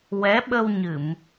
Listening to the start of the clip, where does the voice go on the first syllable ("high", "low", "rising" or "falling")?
rising